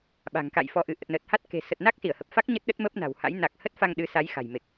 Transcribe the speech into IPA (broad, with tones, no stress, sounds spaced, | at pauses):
ɓ a̤˨˩ ŋ k a̰˧˨ j f ɔ˧ ʔ ɨ˨˦ ʔ ə˨˩ t̚ n əː˨˩ t̚ h a˦˥ t̚ k e̤˨˩ s ə˨˩ t̚ n a˦˥ k̚ s i˧˩ ə̯ h ə˨˩ p̚ f a˦˥ k̚ ɲ ə˦˥ t̚ ɗ ə˦˥ t̚ m əː˦˥ p̚ n a̤˨˩ w h a̰˧˥ j n a˨˩ k̚ h ə˦˥ t̚ f a˧ ŋ ɗ ɨ˨˦ s a˨˦ j x a̤˨˩ j m e˨˩ k̚